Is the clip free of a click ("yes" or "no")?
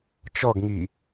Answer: yes